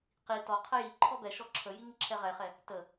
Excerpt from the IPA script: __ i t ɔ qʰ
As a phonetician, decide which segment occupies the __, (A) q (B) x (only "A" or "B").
A